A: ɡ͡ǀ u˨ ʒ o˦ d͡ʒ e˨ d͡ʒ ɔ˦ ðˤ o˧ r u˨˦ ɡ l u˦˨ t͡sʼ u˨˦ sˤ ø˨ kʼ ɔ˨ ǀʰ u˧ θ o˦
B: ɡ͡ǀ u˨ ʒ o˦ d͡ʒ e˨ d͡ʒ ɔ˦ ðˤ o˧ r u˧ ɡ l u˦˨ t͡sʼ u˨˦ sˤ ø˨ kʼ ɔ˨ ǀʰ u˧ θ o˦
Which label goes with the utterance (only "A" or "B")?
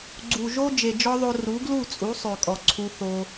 A